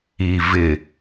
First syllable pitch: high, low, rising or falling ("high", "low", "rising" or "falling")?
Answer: low